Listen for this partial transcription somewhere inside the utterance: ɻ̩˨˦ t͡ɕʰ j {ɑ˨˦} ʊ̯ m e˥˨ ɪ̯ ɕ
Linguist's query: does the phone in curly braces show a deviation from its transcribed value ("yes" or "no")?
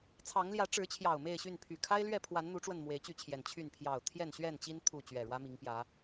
yes